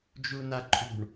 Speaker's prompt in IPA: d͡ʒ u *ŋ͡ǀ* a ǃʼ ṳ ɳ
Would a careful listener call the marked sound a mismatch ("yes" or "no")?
yes